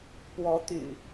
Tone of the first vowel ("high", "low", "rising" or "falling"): rising